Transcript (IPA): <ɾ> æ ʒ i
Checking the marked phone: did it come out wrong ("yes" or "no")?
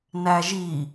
yes